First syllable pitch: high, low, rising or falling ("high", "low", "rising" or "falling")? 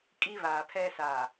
high